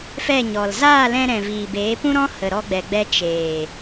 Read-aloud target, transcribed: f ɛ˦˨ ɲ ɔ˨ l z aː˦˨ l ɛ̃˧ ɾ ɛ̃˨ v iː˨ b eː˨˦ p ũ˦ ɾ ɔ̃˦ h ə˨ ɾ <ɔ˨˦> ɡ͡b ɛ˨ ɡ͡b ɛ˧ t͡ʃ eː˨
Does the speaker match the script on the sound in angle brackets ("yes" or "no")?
no